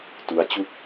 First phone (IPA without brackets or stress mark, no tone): t